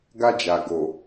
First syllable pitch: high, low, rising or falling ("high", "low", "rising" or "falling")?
high